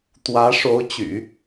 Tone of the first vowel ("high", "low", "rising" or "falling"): rising